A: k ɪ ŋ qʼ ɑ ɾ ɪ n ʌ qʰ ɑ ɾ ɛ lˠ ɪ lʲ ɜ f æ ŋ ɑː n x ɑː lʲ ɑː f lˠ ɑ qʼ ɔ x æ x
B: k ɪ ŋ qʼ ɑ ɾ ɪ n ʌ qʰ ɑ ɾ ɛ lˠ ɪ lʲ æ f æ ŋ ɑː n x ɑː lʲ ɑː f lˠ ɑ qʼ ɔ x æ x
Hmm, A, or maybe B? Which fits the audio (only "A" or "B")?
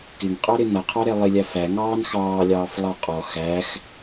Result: B